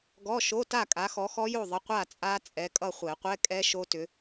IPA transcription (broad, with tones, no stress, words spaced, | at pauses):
ɡɔ˧˥˧ʃo˧˥˧ ta˥˨kʼa˨˥xɔ˨˥xɔ˦˥ jo˥˨ðˤə˨˥ qʷa˥˨t͡sʼa˦˥ t͡sʼɛ˨˥kʼʌ˥˨ χʷɛ˨˩˦qʷɛ˧˥˧kʼɛ˦˥ ʃo˦˥tʏ˨˥